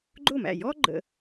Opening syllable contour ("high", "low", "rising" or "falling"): falling